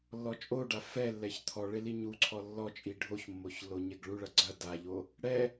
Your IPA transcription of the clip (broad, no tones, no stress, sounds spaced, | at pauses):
lː ɔ t͡ʃʼ o ɖ a f ɛ lː ɛ ç t̪ʰ ɔ ɭ e l i ɲ u ǀʰ ɔ lː ɔ t͡ʃʼ i ɖʱ o ç mː o ç lː o ɲ ɛ ɡ ɭ u ɭ ɐ ɡ͡ǀ ɐ d a ʎ o | ɽ ɛ